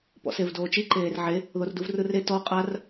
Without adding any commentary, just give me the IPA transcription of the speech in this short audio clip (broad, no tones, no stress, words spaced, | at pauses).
pɔ̰sevdoːt͡ʃi ǃeːrʕe | ðorduvrɯre tɔ qʼar